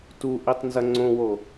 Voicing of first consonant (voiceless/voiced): voiceless